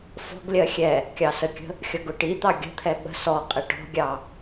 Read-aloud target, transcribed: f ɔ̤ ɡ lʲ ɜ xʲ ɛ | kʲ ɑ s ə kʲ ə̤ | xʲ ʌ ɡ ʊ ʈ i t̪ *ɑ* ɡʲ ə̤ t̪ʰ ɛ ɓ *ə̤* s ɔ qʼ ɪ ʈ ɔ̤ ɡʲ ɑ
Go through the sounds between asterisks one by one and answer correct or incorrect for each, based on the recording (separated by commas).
correct, correct